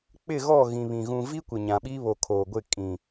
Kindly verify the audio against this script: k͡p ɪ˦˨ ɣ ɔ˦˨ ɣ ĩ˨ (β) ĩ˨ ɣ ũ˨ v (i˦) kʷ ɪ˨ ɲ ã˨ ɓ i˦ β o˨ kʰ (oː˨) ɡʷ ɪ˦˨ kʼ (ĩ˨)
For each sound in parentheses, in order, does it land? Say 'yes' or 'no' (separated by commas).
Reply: yes, yes, yes, yes